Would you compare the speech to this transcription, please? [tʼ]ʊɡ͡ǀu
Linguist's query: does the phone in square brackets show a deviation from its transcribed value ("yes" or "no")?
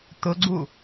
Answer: yes